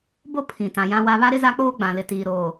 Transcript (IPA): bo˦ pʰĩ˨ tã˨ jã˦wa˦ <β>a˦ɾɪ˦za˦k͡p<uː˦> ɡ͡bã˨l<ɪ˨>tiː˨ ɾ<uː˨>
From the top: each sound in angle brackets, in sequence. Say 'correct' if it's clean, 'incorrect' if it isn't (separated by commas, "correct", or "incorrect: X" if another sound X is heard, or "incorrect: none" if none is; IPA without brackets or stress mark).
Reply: correct, incorrect: oː˦, correct, incorrect: oː˨